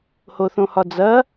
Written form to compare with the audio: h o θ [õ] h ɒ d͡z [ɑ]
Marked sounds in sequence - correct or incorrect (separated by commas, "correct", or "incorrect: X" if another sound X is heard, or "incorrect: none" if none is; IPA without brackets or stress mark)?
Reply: correct, incorrect: ɐ